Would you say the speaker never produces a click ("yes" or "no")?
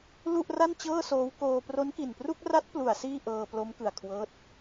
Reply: yes